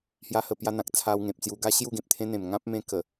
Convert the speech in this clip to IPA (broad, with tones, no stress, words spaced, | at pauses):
hja˦hə˧pja˦ n̪ã˨k̚ t͡sʰa˧wŋẽ˨p̚t͡sju˧ɡa˦ ɕju˥˧ɡẽ˨p̚t̪ʰẽ˦n̪ẽ˨˩m ŋã˦p̚mẽ˧ kə˨˩